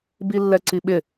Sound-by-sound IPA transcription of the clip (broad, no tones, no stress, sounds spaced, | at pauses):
b i lː ɛ ǀ i ɓ ɪ